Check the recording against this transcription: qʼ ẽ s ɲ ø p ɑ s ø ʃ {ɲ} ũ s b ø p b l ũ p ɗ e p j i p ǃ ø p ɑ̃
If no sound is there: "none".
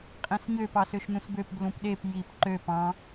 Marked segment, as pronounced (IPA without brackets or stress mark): n